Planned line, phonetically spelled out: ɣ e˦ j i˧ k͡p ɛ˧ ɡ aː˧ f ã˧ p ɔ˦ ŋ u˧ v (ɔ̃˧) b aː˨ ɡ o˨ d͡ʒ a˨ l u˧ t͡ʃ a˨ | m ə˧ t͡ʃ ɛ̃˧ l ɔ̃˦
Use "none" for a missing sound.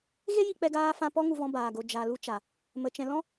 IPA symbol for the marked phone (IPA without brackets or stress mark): ɔ̃˧